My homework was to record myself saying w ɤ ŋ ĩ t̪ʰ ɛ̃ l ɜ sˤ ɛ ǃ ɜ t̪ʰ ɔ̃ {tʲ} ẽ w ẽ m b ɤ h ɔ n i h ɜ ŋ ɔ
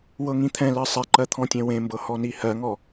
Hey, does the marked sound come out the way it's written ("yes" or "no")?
yes